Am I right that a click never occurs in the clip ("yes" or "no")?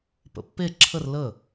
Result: no